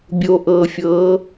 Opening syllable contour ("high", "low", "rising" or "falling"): low